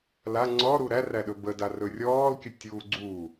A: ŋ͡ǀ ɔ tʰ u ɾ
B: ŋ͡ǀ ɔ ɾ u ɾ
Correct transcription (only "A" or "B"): B